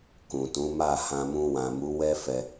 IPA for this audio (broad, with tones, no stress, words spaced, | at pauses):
kũ˨tũ˨˦ma˦˨ hã˧mũ˧wã˨mu˨˦ wɛ˦fɛ˧